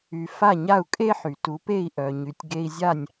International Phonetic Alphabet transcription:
y˧ f a˥˩ ɲ a˥˩ u̯ kʼ e˥ ħ y˩ t u˩˥ p e˥˩ i̯ ʔ œ˩ ɲ y˩ tʲ ɡ e˧ i̯ zʲ a˥˩ nʲ

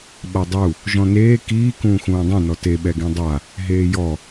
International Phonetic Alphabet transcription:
ɓ a dˤ u | ʒ ɔ̃ n eː k iː k ũː x ũː dˤ ẽ n ɔ t e ɓ ɛ ɡ ẽ dˤ a | ɦ eː j ɔ

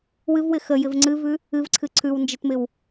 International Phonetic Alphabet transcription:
w ɨ v w ɪ x ə j ɪ v ŋ͡ǀ ɨ v ʉ | ɨ v ǀʰ ɨ ǀʰ ʉ w n d͡ʒ ɪ t m ɪ w

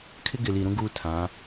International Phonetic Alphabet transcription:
kʰ ɪ˦ ɡ ɪ˨ l i˨ ɾ ũ˦ ɡ u˦ tʰ ã˨˦

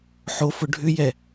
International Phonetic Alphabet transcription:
ħ o f ʊ ɖʱ ʏ j ɛ

